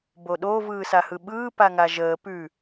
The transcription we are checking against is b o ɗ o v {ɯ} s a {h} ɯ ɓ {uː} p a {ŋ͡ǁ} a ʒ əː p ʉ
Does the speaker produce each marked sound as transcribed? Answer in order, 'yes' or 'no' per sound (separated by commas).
no, yes, no, no